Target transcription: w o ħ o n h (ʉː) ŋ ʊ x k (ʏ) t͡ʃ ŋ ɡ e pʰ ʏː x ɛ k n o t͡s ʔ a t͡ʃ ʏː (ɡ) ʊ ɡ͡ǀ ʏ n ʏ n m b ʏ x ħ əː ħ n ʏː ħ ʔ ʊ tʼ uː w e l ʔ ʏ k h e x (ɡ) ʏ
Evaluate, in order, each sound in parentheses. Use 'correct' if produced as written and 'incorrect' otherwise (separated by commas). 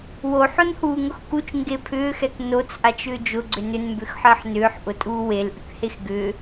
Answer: incorrect, incorrect, incorrect, correct